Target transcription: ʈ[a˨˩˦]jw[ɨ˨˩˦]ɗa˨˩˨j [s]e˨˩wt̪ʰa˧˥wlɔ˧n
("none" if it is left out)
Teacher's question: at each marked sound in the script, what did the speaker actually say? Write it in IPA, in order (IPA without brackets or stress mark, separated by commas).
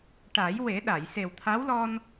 a˨˩˦, e˨˩˦, s